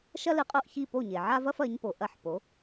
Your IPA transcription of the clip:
ʃ ɐ˥ l ɨ˧ qʼ o˥˩ ʔ ç i˥˩ p o˥˩ ɲ e˩ ʕ a˥ v ɐ˥ f ɐ˩˥ ɲ p o˩ ʔ ɐ˥˩ ħ p o˩˥

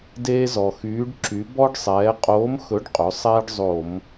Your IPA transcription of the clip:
d eː˦ z ɔ˩ x yː˨˥ ɖ ǁ y˩˧ b ɔ˦ ɖ sˤ ɛː˩˧ qʼ oː˨˥ m x ɵ˨˥ ɖ qʼ ɵ˩˧ sˤ ɛː˦ ɖ zˤ o˧˩˧ m

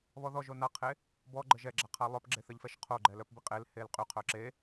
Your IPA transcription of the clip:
β ɔ ð ɔ ʒ o n a qʰ e | b ɔ ɡ͡ǃ ə ʒ ɛ ɡ͡ǁ a qʰ a lˠ œ p ɡ͡ǁ e θ ə ʎ f ɛ ʃ qʰ o ɡ͡ǃ ɛ l œ p b i qʼ e l h e l qʼ y qʰ œ ǁ e

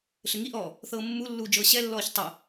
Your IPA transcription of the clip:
ɬ ɘ ŋ i ʔ ɔː | θ ɤː mː u lː uː d͡ʒ ɤː ɕ ɛ lː ɔː ç tˤ ə

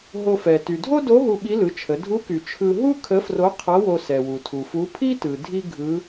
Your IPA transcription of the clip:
ɦ o˧ f ɛ˩ t y˩ dʱ o˥ d o˧˥ ɦ u˧ ɓ i˧˥ l ɯ˩˧ t͡ʃʰ ə˩˧ dʱ u˧˥ k y˩ t͡ʃʰ ɯ˧ ɦ u˥ kʰ ə˧˥ f r o˧˥ qʰ ʌ˧˥ w o˧ s ɛ˩ w u˩ tʰ u˩ f u˧˥ pʰ i˥ t ɯ˩ dʱ i˥ ɡʱ ɯ˧˥

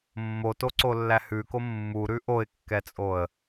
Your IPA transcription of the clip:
mː o t o ǀ o lː æ h ʉ k o mː u ɾ ʉ ʔ o ɪ̯ kː ɛ t͡sʼ o ə̯

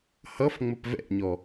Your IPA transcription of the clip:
h ʌ f ŋ͡m ə p v ɛ̰ ɲ ɔ

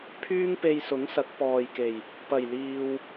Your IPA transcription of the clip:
pʰ yː˥ ŋ p e˧ j s ʊ˨˥ ŋ s ɐ˨˥ k̚ p ɔː˨ j k e˨˩ j | p ɐ˨˩ j l iː˨ w

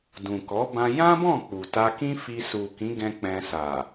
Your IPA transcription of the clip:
d ũ˨ k ɔ˨˦ b ã˧ j ã˦ b ɔ̃˦˨ k͡p u˨ t a˧ k ĩ˦ f i˧ s u˨ k ĩ˨˦ ɡ ɛ̃˧ k͡p ɛ̃˧ s a˨

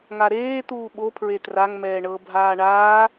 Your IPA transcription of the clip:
ŋ a ɾ eː t̪ uː ɓ o pʰ ɹ e t r a ŋ m ɛː ɳ ɤ bʱ aː ɳ aː

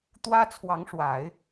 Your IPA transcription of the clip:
t̪ w ä˥ t͡sʰ w ɑ˧˥ ŋ ʂ w a˨˩˦ ɪ̯

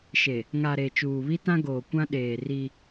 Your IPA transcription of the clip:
ʃ e˨ | ŋ a˨ ɾ e˨ t͡ʃ uː˨ β i˦ t ã˦ ɡ oː˨ kʷ ã˦ ɗ eː˨ r i˦

